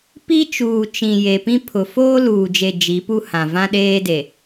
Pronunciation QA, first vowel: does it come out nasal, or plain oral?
oral